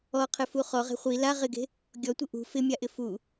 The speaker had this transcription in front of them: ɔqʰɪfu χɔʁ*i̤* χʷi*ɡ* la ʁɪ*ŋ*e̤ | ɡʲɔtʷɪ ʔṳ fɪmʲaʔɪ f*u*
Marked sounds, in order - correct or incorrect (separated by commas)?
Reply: incorrect, incorrect, incorrect, correct